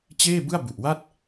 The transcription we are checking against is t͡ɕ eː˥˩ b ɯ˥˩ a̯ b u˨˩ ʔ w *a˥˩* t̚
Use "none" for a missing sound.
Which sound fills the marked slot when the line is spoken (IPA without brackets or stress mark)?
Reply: a˥˩